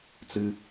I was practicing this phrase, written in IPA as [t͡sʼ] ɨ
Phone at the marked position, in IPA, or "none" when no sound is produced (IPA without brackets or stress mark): t͡s